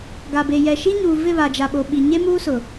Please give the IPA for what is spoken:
ɡ a˨ b e˨ j ɛ˨ ʃ i˦ ɲ uː˨ v ɪ˦˨ β a˨ d͡ʒ a˨ ɓ o˨ ɓ i˨ ɲ e˦ m uː˦ s ʊ˨

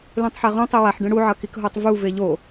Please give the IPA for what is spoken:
l ũ tˤ ħ e ʁ õ tˤ e w a ħ ɖ ɛ̃ ɽ u ʕ ʌ k i k ɦ o tˤ v u v e ʎ o

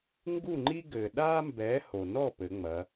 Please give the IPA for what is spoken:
ŋ ɡ u˥˨ ŋ͡ǃ i˥ ɡ ɘː˩ ɗ aː˥ m b ɛː˨˥ h o˩ n ɔ˥˨ p ɘ˩˧ ŋ͡m ɐ˩˧

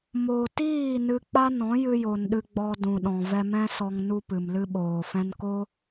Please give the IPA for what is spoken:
m o˨ t iː˦˨ n ɨ˧ k͡p a˦ n ɔ̃˨˦ j ɨ˧ j o˨ n ɗ ɨ˧ ɡ͡b ɔ˧ d ũ˨ ɗ ɔ̃˨ v ɛ˧ m ɛ̃˦ s ɔ˧ ŋ n u˧ p ɨ˨ m l ɨ˦ ɓ oː˨ f ɛ̃˦ n k o˦

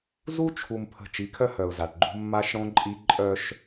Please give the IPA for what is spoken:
z u˦ t͡ʃʰ u˨ m pʰ ə̤˨ t͡ʃ i˨˦ kʰ œ˦ h œ˨ ʊ̯ z a˨ ʈ ɡ͡ǃ ṳ˦ mː a˦ ʃ ɽ õ˦ ǃʼ i˦ ǃʼ œ˦ ʃ

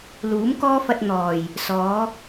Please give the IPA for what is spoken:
l uː˨˥ m k ɔː˥ f ɐ˧ t̚ n̪ ɔː˨˩ j | s ɔː˨˧

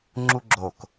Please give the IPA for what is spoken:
ŋ͡ǁ u ɡ͡ǁ o k

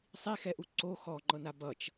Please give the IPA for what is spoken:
sˤ i x ɛ ʔ u ǀ o x ɔ ŋ͡ǃ ɤ n a b ʌ t͡ʃ

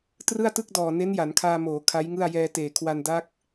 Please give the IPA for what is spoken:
t r ɯ˥˩ a̯ t ɯ˥˩ k̚ d ɔː˨˩ n e˦˥ n j a˩˦ n kʰ aː˧ m oː˩˦ kʰ a˦˥ j ŋ ɯ˥˩ a̯ j ɛː˧ t eː˨˩ kʰ w a˧ n d a˦˥ k̚

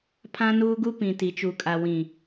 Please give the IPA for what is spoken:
pʰ ã˦ n uː˦ ɡ u˦ p ĩ˨ t i˨ t͡ʃ u˨ kʼ a˨ w ĩ˨

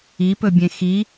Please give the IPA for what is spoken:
i p ɵ bʲ ẽ x i

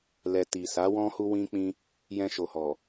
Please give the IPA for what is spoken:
l ɛ˨ t i˨ s a˨˦ w ɔ̃˦ h u˦ w ĩ˦ k͡p ĩ˦ | j ɛ̃˧ ʃ o˨ h ɔ˨

